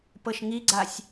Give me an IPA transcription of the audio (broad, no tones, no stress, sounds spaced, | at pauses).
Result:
p ɤ ʃ ŋ i ɡ͡ǀ a sʲ